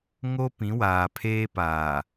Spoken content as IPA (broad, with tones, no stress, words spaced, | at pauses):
ŋo˦pĩ˨˦waː˨ pʰeː˦ paː˨